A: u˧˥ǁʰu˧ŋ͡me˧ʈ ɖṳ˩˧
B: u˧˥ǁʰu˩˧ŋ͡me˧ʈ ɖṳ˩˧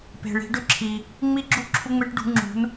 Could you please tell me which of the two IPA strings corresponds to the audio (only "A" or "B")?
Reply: A